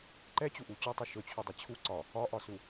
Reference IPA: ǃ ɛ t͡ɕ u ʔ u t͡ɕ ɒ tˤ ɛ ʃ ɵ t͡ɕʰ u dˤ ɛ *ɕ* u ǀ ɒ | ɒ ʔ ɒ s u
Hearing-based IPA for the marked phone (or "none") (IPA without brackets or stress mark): t͡ɕʰ